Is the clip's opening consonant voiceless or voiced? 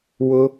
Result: voiced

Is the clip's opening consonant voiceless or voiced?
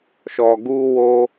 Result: voiceless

